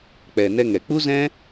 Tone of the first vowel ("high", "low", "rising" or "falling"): low